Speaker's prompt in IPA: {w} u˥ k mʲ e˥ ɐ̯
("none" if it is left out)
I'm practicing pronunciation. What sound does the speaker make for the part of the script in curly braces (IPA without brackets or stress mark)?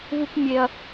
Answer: v